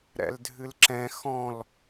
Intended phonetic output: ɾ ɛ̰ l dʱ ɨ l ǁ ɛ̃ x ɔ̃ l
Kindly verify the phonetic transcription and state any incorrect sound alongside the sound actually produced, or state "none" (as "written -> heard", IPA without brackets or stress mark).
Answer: none